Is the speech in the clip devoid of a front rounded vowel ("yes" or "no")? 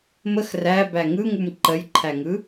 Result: yes